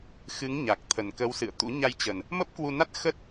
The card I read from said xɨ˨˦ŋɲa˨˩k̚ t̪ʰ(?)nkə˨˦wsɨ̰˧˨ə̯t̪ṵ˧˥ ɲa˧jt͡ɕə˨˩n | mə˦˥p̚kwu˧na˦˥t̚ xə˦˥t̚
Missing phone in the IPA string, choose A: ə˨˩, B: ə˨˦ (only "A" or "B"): A